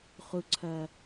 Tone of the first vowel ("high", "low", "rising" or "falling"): low